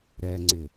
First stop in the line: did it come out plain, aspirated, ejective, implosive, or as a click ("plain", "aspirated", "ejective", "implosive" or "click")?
click